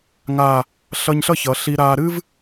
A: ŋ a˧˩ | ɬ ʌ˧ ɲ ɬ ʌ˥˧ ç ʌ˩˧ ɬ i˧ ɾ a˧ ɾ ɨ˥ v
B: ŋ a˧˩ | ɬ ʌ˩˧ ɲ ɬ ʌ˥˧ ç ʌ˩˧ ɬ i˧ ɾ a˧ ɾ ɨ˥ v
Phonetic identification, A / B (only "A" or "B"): A